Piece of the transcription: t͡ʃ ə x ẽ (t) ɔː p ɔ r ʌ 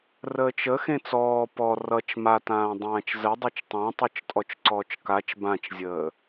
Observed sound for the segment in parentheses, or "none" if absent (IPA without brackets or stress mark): t͡s